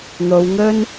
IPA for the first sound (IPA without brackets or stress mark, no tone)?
n̪